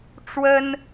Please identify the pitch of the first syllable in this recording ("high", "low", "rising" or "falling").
high